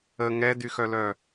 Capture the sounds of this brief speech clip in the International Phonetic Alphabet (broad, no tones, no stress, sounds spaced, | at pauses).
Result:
ə ŋ ɛ d y x œ l œ